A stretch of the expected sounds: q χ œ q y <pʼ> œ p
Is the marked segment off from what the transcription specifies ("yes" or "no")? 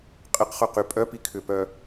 no